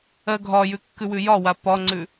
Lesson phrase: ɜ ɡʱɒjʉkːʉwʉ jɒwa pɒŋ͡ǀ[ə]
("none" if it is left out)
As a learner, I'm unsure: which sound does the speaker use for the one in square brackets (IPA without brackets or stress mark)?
ʉ